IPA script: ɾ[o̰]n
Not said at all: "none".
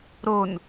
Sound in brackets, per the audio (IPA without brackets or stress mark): o